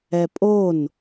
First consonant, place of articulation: labial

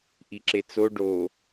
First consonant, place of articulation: glottal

